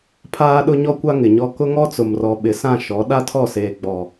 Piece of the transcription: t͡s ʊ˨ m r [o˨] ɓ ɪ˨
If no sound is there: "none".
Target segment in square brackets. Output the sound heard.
ɔ˨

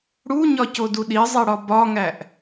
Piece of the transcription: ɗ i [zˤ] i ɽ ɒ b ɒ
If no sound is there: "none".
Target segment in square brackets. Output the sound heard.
zˤ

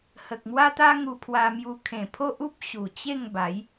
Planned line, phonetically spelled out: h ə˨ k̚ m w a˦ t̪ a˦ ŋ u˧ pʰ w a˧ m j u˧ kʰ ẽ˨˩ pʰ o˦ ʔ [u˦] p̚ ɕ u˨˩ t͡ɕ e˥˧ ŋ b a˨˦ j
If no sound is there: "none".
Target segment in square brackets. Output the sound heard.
u˦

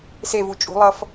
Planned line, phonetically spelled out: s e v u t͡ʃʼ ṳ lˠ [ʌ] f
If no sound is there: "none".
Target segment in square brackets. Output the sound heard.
ʌ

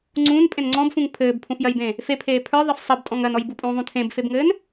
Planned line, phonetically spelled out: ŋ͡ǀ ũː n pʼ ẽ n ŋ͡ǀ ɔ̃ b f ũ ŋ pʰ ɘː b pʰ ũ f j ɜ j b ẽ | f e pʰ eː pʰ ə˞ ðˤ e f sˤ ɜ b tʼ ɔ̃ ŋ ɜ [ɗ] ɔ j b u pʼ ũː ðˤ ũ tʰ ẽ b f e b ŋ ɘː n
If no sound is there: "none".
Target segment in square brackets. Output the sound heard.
n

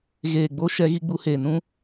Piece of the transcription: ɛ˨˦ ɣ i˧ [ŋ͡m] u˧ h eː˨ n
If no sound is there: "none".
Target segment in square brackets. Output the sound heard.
ɡ͡b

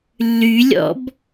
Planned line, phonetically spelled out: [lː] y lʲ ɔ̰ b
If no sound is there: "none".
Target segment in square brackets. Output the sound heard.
lː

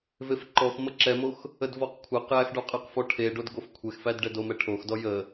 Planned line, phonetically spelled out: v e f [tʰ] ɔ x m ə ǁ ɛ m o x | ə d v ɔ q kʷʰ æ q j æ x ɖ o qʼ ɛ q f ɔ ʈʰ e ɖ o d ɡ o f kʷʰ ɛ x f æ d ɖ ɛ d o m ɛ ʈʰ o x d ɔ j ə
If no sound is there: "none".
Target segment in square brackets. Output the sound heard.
ǃ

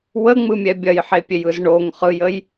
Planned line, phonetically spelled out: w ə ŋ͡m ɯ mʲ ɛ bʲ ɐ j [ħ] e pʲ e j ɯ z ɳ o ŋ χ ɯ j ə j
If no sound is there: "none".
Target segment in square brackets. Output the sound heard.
ħ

